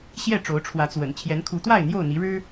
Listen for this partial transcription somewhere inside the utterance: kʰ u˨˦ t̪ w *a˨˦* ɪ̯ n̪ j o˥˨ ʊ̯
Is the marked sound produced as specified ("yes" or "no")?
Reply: no